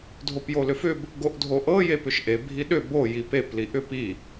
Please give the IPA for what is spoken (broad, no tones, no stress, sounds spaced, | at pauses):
dʱ o p j o l ʏ f ʏ b | ɡ o ʔ dʱ o ʔ ɤ j e p ʏ ʃ ʔ e bʱ i ɗ ʏ b o j i p e p l i ʔ ʏ p i